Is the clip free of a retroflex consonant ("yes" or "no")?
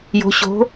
yes